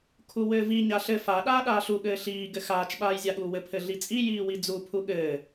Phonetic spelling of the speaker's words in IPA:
kʰ u w ɘː v i ɲ a ɬ ɘ f a ɗ aː ɗ aː ɬ u ɠ ɘː ɬ iː ɡ ɘ x aː t͡ʃ ɓ aː j zʲ a ɠ uː w ɘ pʰ ɘ ɮ i t͡sʼ i j iː w i d͡z u pʰ u ɠ ɘː

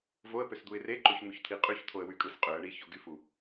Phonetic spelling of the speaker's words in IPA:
v o ə̯ p ø s d̪ u ɪ̯ r e ǃ o ç n̪ u ç t̪ʰ i qʼ y ç t̪ʰ o ə̯ w y kʼ ɯ s qʼ ø ə̯ ɳ i ç o ɡ y f u

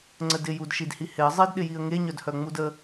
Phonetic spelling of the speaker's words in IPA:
ŋ͡ǀ ə d ɪ j u d ʃ i d h i h ɪ ə̯ zˤ e d ɗ ɪ j i ə̯ ŋ e ɲ œ d h œ ŋ͡m u d ə

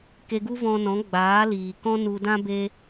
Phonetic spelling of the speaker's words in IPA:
k e˧ ɡ u˦ v ɔ̃˧ n ɔ̃˨˦ ɡ͡b aː˨˦ l iː˨ k ɔ̃˦ n u˧ d ã˦ b e˦

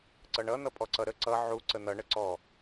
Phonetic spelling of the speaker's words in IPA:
ǀ ʌ ɳ ʌ n̪ ʌ pʼ ɔ ǀ ʌ ɾ ə ǀ ʌ ʕ u ǀ ə n̪ ʌ ɳ ə ǀ ɔ

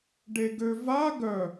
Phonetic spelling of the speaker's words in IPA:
ɖ e ɡ ø v a ɡ œ

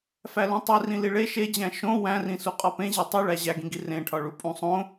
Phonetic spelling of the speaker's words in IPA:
f æ l ũ tˤ i r ĩ l i ɭ e ʃ e d͡ʑ æ̃ ʃ õ w æ̃ r ĩ s u qʼ ɒ p ẽ ʑ e tˤ u ɭ æ ʑ æ ɡ ĩ ɡ i r ẽ ʈʰ ɒ ɭ u pʼ ũ sˤ õ

